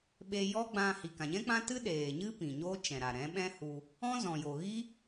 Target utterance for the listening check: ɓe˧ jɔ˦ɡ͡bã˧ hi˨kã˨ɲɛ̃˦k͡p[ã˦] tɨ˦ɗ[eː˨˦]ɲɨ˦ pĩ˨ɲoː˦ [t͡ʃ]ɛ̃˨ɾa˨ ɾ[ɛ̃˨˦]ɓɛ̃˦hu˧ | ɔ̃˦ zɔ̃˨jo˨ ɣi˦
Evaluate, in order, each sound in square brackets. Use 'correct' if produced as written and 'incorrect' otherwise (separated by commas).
correct, incorrect, correct, correct